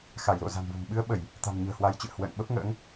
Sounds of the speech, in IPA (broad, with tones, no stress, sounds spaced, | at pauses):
x a˧˩ j l o̰˧˨ z a̤˨˩ n v o̤˨˩ m ɓ ɨ˧ ə̯ ɓ ə˧˩˨ j | t̪ a̤˨˩ m ɲ ə̤ː˨˩ h w a˨˦ j t͡ɕ ɨ̰˧˨ ə̯ h w ə̰ː˧˨ n ɓ ə˦˥ p̚ ŋ ə̰ː˧˥ ŋ